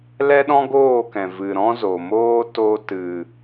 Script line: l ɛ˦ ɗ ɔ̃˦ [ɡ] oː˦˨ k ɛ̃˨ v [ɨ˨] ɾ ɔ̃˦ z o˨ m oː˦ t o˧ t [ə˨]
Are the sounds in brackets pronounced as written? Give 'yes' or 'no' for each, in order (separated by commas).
yes, yes, no